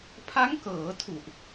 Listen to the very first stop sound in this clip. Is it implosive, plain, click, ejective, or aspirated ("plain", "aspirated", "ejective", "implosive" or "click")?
aspirated